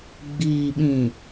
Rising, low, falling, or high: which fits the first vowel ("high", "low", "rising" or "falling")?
low